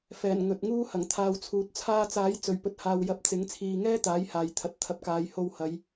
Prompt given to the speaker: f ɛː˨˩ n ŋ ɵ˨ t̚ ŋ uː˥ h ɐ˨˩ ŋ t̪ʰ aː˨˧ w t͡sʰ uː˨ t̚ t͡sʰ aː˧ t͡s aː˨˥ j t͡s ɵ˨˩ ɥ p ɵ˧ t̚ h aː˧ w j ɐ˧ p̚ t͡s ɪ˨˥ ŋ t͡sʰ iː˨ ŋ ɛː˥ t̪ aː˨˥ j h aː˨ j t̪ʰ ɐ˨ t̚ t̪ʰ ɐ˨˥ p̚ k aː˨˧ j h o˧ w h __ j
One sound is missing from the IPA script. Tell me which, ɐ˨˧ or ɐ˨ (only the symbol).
ɐ˨˧